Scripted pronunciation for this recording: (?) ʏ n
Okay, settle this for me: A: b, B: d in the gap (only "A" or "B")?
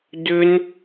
B